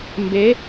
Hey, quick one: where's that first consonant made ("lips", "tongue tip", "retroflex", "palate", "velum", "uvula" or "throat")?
lips